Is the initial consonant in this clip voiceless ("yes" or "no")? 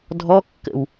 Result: no